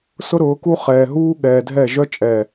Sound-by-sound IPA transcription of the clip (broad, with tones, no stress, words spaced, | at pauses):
sʊ˦ɾʊː˨˦ku˦ χɛː˨ɦuː˦ɠɛː˨dʱɛ˦˨ ʒœ˦t͡ʃʼɛː˨